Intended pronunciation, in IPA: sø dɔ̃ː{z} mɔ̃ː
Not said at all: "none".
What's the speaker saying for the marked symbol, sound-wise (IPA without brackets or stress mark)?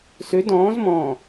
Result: z